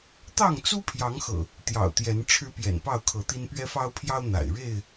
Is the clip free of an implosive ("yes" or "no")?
yes